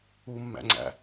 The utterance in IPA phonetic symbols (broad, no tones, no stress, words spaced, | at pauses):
umːæ̰ŋ͡ǀæ̰